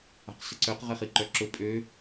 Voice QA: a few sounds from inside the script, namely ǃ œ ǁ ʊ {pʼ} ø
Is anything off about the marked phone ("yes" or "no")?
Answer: no